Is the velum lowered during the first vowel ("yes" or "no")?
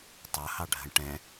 no